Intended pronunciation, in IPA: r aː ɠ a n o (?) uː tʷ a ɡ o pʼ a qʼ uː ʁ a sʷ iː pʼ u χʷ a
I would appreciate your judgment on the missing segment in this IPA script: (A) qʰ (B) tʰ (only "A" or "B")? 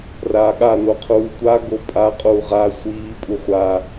A